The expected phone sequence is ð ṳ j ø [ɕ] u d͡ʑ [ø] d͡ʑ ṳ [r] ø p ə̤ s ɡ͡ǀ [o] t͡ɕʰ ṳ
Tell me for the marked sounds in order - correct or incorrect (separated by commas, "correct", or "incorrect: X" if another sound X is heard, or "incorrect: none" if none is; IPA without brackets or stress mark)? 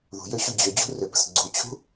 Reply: correct, correct, correct, incorrect: u